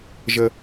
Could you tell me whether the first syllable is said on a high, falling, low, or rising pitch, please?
low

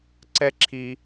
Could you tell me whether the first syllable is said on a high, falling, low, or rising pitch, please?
high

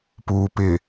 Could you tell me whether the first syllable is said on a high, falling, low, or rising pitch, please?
low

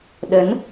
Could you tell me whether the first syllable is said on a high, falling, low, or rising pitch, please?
rising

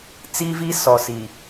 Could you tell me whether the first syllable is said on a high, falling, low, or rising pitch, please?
high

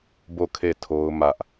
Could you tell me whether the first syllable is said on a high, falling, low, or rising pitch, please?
falling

